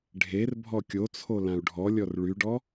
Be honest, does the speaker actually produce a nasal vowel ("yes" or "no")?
yes